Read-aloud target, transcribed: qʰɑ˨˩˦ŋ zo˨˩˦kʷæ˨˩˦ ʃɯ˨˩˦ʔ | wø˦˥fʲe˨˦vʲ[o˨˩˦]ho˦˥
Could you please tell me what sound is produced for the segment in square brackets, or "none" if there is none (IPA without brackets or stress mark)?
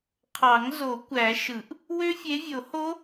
o˨˩˦